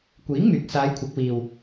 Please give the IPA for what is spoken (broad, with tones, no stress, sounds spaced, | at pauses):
kʷ iː˨˥ ŋ m yː˨ k̚ s aː˨˧ j kʷʰ ɐ˨˥ k̚ w iː˨ w